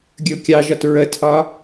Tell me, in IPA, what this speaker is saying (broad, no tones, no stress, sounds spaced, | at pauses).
ɡʲ ə ʊ̯ kʲ ɑ ʒ ɒ t ɹ ə tʰ ɒ